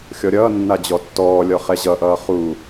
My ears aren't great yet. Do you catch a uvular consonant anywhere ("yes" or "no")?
yes